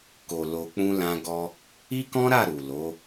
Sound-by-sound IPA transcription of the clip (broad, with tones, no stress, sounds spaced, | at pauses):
k o˨ l o˧ k͡p ũ˦ l ã˦ ɡ ɔ˦ | i˦ k ɔ̃˦ ɾ a˦˨ ɾ u˨ l o˨˦